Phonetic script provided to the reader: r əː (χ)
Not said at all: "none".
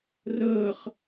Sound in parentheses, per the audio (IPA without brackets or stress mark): χ